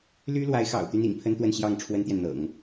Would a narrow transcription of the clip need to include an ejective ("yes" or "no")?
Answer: no